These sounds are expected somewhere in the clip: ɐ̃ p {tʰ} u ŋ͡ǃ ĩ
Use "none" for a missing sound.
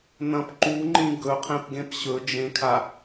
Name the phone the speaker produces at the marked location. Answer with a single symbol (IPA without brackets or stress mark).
ǃ